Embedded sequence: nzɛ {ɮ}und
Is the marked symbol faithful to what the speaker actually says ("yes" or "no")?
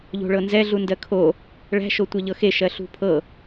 yes